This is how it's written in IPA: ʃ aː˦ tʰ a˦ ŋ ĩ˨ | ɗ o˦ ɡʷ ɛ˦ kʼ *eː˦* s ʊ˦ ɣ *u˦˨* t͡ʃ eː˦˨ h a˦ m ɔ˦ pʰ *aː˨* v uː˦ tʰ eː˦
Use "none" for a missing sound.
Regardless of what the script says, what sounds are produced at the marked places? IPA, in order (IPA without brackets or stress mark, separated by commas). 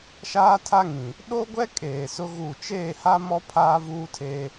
eː˨, u˦˨, aː˦